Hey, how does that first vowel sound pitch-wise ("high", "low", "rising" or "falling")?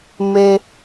low